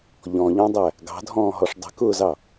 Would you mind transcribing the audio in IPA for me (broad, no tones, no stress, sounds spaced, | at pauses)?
ʎ ɔ̃ ʎ ɔ̃ dˤ æ | ɡ ɑ̤ dʱ ɔ̃ː ɦ ɔ ʂ dˤ ə̤ k ʊː z ɑ